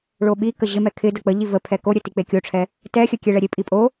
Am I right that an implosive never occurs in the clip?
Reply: no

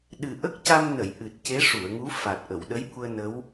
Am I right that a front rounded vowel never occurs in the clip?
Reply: yes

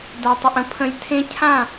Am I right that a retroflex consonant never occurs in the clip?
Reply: yes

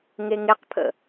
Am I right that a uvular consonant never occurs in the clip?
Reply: no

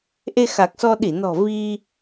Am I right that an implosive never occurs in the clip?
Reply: no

